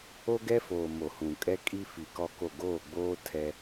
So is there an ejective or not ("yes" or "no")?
yes